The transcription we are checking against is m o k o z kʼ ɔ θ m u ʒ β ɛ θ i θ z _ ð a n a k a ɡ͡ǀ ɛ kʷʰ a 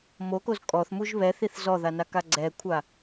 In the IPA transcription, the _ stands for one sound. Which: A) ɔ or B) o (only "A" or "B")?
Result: A